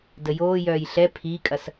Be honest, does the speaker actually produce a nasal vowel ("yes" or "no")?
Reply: no